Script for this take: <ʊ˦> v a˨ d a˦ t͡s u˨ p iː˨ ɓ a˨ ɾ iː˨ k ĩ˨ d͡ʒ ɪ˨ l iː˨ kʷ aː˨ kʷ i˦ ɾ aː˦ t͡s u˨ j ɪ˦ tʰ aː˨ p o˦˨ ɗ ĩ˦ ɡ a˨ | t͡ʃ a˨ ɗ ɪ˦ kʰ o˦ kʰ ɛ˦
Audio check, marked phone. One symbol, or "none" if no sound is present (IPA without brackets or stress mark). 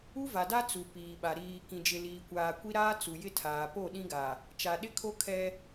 u˦